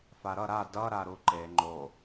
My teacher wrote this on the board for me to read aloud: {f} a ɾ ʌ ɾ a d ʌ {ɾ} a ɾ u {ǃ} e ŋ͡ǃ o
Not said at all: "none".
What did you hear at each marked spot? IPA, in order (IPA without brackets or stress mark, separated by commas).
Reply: f, ɾ, ǃ